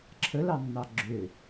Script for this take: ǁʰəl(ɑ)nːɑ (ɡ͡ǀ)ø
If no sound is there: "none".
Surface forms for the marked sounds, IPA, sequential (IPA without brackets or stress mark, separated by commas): ɑ, ɡ͡ǁ